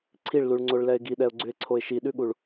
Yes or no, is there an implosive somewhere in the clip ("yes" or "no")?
yes